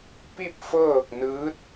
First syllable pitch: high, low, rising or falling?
falling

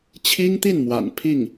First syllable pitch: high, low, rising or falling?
high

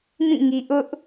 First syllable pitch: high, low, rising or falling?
falling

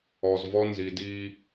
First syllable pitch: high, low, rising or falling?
low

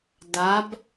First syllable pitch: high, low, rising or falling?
rising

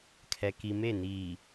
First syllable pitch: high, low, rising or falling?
low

